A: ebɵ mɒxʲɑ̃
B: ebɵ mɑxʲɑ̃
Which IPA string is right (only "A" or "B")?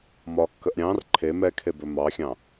B